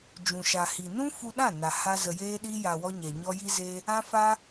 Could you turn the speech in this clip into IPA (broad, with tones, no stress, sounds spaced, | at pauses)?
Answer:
d͡ʒ ũ˨ ʃ a˨ h i˨ n ũ˦ f u˧ ɗ ã˦˨ n a˨ h a˧ z ə˨ j eː˧ ɗ i˧ j a˨ w ɔ˧ ɲ ɛ˨ ɲ ɔ˧ j i˦ z eː˦ | ã˦ f aː˦